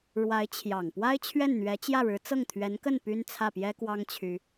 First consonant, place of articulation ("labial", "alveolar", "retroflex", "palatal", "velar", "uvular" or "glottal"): retroflex